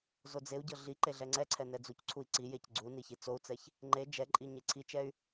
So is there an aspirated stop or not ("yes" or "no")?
yes